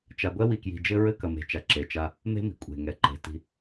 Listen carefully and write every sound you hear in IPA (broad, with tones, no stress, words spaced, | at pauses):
t͡ʃa˨ɡʷɛ˦wi˨kji̤˨ d͡ʒɘ˦ɹɘ˦kɐ˨me̤˨ t͡ʃa˨ǁe˨t͡ʃa˦ | me̤˦mi̤˨kʷʼe̤˨ŋɛ˨ ǃe̤˨ti̤˦